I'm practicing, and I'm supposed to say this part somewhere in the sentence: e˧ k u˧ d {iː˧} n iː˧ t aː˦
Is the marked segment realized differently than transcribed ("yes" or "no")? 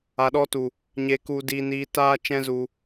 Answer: no